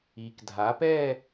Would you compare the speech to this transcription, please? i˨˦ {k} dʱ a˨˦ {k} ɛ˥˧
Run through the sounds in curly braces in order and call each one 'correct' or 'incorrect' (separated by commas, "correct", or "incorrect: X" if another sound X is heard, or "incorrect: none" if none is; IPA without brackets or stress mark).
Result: correct, incorrect: p